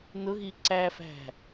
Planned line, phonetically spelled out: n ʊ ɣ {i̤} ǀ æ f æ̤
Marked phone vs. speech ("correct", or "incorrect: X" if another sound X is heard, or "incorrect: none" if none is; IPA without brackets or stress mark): incorrect: i